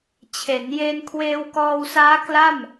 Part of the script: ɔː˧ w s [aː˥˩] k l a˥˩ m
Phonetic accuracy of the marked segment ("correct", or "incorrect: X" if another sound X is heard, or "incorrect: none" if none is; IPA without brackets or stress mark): incorrect: aː˦˥